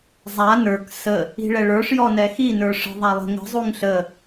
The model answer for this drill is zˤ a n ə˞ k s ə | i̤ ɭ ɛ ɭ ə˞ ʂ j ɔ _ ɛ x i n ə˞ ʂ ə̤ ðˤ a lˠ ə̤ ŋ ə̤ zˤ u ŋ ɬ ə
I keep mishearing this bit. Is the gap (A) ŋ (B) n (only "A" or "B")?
B